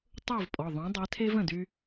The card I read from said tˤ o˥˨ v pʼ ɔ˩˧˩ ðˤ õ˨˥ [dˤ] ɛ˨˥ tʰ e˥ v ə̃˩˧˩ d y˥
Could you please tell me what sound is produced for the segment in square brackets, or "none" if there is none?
dˤ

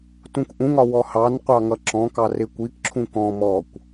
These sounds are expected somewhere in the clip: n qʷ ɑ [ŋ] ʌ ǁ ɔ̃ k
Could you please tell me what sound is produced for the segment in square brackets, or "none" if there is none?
ŋ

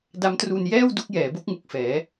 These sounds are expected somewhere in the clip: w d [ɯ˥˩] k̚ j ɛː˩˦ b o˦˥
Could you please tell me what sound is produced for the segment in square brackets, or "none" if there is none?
u˥˩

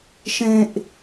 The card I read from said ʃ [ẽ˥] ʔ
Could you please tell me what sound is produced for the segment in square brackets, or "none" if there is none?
ẽ˥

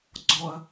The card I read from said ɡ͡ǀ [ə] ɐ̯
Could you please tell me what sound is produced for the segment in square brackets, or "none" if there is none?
ɔ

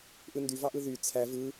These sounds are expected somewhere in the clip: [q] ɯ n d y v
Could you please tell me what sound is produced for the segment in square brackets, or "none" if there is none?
ʔ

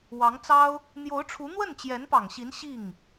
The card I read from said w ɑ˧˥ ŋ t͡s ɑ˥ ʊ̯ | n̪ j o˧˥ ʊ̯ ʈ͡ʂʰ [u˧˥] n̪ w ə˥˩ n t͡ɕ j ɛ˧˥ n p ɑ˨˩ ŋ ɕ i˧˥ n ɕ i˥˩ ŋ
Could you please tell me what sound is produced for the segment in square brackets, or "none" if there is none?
u˧˥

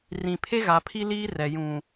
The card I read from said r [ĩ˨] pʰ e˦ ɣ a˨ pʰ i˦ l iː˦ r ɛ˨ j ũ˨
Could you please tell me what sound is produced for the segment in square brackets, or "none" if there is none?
ĩ˨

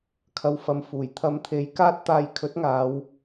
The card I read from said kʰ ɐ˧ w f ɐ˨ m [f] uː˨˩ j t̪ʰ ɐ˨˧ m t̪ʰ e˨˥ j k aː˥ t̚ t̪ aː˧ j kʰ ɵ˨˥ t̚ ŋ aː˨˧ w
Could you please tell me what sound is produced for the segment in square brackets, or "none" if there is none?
f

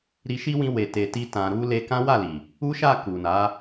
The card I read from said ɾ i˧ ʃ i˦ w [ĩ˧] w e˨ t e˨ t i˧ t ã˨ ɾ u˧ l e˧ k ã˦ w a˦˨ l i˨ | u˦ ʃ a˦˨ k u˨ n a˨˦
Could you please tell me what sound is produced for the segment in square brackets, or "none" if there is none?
ĩ˧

